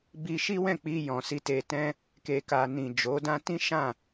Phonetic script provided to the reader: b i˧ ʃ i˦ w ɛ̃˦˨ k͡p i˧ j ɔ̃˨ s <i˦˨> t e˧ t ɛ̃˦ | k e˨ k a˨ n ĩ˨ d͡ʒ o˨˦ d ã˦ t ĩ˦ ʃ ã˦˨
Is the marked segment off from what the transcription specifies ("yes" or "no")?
yes